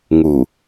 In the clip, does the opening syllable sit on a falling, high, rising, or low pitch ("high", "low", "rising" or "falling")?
low